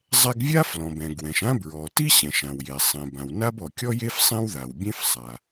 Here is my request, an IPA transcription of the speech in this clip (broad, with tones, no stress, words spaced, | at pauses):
zˤɛ˥ɡ vʲa˥ flɔ̃˩bɛ̃˩ ɡwɛ̃˩ʃã˥ bɹɔ˩ti˥ ɕɛ̃˩ʃã˩wje˩ sˤẽ˩bã˩wna˥bɔ˩ kʲɔ˥je˥f sˤẽ˥wða˩wbʲẽ˥f sˤa˩